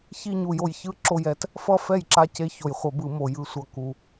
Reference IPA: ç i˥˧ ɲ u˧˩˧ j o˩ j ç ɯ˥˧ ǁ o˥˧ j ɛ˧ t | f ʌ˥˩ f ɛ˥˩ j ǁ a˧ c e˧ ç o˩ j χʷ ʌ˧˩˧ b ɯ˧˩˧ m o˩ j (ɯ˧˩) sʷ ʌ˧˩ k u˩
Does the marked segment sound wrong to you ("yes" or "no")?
no